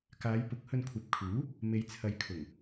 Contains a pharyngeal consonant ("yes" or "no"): no